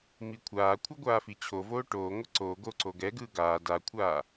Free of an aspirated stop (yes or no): no